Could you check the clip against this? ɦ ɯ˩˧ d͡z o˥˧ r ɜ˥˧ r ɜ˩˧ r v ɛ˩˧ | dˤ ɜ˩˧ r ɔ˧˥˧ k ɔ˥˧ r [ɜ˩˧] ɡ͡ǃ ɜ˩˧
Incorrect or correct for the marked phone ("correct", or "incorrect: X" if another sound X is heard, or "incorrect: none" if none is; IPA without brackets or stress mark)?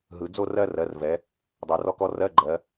incorrect: ɜ˧˥˧